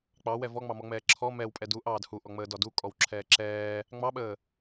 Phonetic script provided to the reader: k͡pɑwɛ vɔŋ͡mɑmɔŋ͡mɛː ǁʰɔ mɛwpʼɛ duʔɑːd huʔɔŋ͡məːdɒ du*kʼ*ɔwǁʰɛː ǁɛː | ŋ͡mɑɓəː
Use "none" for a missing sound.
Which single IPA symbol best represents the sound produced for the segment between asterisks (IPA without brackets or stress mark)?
kʼ